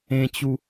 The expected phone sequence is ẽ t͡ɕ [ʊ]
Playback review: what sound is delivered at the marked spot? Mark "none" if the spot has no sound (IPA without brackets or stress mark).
u